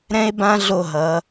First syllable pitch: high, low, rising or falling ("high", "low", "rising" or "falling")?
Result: high